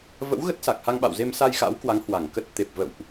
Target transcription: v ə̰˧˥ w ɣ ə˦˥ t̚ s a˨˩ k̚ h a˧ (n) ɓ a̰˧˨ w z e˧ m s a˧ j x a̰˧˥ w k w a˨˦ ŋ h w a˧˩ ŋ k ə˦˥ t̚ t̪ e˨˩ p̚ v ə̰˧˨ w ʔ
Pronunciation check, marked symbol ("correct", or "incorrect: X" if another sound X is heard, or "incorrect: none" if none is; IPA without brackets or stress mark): incorrect: ŋ